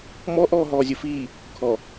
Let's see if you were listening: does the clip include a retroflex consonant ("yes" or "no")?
no